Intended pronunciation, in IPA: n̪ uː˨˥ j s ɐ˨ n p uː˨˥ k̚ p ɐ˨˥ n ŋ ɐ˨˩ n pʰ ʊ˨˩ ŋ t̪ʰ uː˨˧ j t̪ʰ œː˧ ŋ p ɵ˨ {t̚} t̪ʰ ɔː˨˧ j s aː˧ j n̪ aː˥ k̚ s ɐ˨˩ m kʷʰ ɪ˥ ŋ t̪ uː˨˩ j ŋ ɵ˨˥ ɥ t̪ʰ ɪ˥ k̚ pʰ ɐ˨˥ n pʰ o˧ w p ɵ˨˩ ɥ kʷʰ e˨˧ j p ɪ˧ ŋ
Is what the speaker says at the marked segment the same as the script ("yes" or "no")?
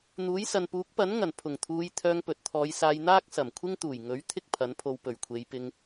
yes